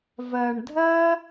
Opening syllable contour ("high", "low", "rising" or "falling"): low